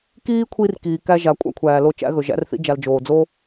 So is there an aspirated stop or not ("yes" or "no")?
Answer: yes